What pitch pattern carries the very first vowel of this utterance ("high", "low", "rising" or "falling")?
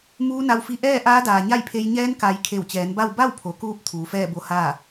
rising